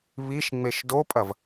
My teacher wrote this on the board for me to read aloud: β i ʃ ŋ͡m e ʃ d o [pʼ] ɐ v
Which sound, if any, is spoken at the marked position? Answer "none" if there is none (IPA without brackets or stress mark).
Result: pʼ